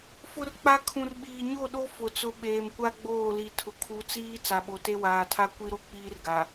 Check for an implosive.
present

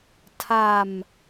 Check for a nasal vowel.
absent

